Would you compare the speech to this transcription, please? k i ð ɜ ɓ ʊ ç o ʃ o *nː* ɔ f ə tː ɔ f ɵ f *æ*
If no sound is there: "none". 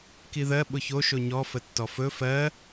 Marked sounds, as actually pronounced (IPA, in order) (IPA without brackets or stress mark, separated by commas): ɲ, ɜ